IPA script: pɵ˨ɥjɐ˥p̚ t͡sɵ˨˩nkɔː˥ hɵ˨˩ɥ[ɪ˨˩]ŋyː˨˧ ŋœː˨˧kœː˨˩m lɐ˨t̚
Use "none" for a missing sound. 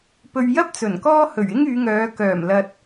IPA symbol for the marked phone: ɪ˥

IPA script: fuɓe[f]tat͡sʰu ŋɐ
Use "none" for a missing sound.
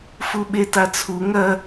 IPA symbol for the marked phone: none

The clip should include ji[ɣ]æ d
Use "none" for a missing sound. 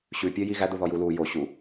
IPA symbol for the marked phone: ɣ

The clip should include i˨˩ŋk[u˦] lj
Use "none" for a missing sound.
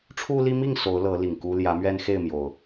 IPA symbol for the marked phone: u˦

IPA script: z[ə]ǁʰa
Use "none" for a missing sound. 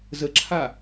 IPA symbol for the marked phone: ə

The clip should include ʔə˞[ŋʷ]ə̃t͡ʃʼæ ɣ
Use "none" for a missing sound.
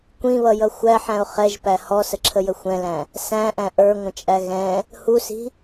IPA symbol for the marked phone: ŋʷ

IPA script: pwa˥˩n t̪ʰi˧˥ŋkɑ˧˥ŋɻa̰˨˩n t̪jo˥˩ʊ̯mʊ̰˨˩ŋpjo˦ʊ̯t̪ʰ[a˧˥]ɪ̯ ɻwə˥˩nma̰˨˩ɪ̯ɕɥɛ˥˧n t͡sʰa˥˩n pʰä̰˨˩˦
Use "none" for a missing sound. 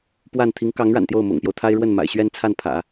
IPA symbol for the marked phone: a˥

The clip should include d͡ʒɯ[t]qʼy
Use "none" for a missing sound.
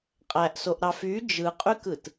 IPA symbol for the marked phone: none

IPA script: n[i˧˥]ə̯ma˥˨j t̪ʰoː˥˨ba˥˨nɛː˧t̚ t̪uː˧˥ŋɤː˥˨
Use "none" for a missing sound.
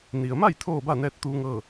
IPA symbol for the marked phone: i˩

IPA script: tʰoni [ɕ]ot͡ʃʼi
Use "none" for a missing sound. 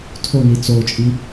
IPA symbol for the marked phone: t͡s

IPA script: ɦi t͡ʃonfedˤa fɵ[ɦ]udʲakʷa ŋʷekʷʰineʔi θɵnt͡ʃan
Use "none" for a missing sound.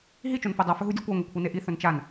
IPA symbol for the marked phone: ɦ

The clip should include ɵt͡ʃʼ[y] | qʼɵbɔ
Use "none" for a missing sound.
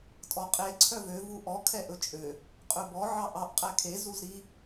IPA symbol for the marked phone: ø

